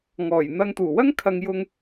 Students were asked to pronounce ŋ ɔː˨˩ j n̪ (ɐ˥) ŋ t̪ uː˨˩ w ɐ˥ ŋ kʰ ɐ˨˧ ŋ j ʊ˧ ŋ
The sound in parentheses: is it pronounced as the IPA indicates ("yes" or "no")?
no